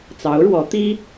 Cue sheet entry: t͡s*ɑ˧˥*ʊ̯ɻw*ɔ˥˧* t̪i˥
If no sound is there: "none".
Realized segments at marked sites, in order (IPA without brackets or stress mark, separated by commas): ɑ˧˥, ɔ˧˥